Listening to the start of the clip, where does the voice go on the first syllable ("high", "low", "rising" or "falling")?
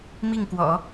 falling